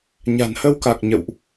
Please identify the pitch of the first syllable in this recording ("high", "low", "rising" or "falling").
low